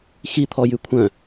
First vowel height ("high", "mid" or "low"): high